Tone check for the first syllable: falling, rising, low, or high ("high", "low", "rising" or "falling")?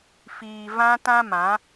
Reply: low